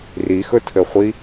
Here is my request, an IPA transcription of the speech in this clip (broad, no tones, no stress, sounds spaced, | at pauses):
r i x ɵ tʰ ɘ χʷ i